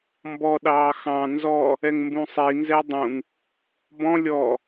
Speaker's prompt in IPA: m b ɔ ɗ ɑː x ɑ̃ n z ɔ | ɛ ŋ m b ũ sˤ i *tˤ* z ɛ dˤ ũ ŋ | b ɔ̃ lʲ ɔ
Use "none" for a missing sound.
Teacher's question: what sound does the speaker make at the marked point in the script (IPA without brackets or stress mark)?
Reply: n